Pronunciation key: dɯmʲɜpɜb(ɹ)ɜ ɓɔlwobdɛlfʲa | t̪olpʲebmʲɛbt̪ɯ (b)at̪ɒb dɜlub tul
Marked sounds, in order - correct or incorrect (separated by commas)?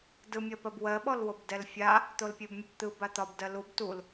incorrect, correct